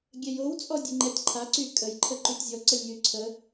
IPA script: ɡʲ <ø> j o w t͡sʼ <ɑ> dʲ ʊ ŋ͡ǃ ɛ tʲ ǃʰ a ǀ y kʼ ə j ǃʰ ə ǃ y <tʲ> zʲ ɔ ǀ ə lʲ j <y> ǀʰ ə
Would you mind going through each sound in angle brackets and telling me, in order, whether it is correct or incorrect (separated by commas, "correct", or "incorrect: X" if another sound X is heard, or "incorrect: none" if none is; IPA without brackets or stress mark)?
incorrect: ɛ, incorrect: ɔ, correct, correct